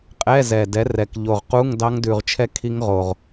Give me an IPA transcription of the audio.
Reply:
qʼɛ˧˥˧ zɛ˨˩dɛ˨˥rɛ˨˩k ʎo˨˩ʁqu˧˥˧ŋ dɑ˦˥ŋdʉ˨˩ʁt͡ʃʰɛ˦˥ kʰi˦˥ŋʁo˨˩ʁ

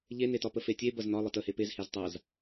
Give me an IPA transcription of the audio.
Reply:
ʎenetɒpə fetʲe bɐznɒ lˠətəhe pezhez tˤaz

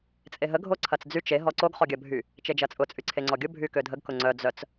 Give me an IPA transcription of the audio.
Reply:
t͡sʼeɦə ɡʱoǀʰɐt͡sd͡zyt͡ʃ e ɦɔǀoɡ χɔɡʲɐbʱy | t͡ʃed͡ʒɐt͡sʼʊ t͡sʼyǀʰeŋ͡ǀɔɡʲʊ bʱykødʱəɡ kʊŋ͡ǀœ d͡zœt͡s

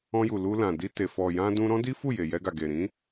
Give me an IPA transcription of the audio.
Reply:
ɔ̃˧ju˨ lu˧lã˨ di˧te˨ fɔ˨ jã˧dũ˧ ɾɔ̃˦di˦fu˦˨ je˨jɛ˧ɡa˨ ɡe˨ɾĩ˨˦

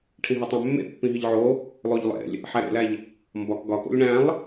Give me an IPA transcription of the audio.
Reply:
ʈʰĩɦætˤæ̃mːḛ pːĩɦiʎʕo | lˠoʎlˠḛlʲ | ħæɾḛlæʎ | mbɒk ɡɒko̰lʲ ɳæ̃lˠ

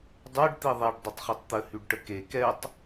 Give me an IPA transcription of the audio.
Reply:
dˤœɖ t̪iðˤiɖ dˤʊtˤχytˤt̪ə hyɖʈəke kɛtˤ

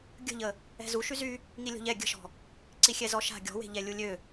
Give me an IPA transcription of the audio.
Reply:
ɡʲə̤ʎə | ɛ̤zu ʃyzy | ŋilʲɔ̤ʎɛ ɡʲə̤ʃɔ̤ | ǀixʲɛzɔʃa̤ ɡʲɔ̤we̤ʎɛ lʲulʲø

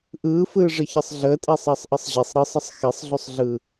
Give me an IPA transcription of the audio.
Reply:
ʔɯːfɯːʐə çɯsˤɮəːtʼe sˤəːsˤʔɯsˤʑisˤ ɾɯsˤəsˤ xesˤɮusˤɮɯ

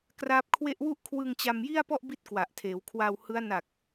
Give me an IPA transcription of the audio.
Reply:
kra˦˥p̚kʰwe˥˩ʔ wu˦˥ʔkʰwɯ˧ŋ t͡ɕa˧mji˥˩a̯pɔ˥˩ʔbi˦˥t̚ kwa˨˩ʔtʰeː˩˦wkʰwa˧whɯ˦˥a̯ na˨˩k̚

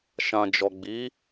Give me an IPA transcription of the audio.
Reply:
ʃã˨d͡ʒɔ˨ɡ͡bi˨˦

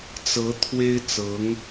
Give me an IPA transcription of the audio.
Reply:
t͡sɤ˧˥ t̪ʰwe˥ɪ̯ t͡sɤ˧˥ŋ

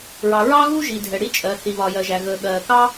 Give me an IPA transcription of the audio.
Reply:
ɹɑ˩ɹɑ˥ɣu˥ ʒi˩dʱɛ˩ ɽi˥t͡ʃʼɜ˩ θi˩βɒ˩jɜ˩ʒæ˩ ɣə˩ɠɜː˩kɑ˥

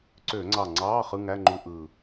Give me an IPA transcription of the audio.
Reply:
ǀø˧˩˧ŋ͡ǀɑ˧˩ŋ͡ǀɑː˧˥˧ χɯ˧˥˧ŋæ˧˥˧ŋ͡ǃu˧˥˧ ʔɯː˧˩

